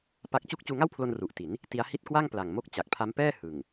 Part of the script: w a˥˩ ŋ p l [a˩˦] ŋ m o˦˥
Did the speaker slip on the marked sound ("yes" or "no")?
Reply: yes